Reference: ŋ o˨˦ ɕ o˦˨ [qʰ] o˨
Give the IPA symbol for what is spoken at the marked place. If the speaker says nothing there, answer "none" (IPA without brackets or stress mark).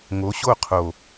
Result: qʰ